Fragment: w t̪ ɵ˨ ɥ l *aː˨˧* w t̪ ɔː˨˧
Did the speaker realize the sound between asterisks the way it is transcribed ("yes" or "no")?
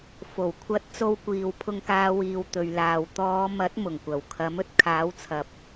no